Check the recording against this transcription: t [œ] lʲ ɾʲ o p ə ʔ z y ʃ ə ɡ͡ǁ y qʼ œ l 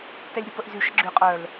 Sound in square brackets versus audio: incorrect: ɛ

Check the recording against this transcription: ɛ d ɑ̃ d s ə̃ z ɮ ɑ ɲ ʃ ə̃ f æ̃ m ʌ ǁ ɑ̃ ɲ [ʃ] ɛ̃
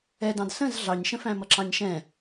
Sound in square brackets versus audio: correct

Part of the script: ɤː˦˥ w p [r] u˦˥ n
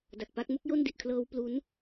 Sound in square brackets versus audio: incorrect: l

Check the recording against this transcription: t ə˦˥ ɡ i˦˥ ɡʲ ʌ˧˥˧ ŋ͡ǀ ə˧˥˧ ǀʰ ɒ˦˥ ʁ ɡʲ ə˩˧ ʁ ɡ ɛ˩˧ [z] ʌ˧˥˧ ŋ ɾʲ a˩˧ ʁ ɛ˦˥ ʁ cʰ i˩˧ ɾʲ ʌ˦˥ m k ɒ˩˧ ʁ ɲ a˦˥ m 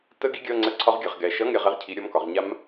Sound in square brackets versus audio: incorrect: ʃ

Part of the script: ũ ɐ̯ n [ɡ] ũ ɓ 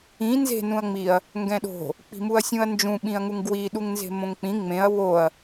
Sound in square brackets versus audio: incorrect: d͡ʒ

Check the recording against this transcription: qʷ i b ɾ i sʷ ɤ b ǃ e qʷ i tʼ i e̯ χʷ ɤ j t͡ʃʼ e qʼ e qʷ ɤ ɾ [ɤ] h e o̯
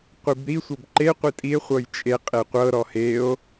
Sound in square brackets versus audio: incorrect: ɔ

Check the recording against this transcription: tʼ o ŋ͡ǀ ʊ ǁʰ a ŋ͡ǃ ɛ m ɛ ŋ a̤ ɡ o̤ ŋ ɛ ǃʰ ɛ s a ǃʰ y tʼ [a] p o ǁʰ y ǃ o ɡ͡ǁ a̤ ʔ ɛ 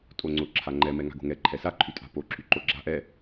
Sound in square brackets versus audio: incorrect: a̤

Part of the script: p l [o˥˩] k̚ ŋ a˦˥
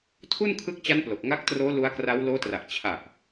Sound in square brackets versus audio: incorrect: o˨˩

